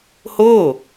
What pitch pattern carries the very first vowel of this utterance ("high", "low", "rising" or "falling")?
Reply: falling